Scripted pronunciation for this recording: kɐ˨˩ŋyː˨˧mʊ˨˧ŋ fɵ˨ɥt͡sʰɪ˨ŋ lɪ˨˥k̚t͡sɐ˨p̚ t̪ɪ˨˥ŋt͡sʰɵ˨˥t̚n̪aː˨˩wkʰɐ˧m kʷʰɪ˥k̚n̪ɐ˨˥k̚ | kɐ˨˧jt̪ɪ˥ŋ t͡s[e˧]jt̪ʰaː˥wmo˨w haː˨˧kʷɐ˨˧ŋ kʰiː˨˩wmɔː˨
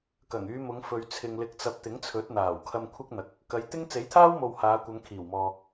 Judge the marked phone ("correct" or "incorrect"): incorrect